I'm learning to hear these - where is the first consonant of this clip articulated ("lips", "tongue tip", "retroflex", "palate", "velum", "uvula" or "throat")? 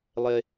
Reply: tongue tip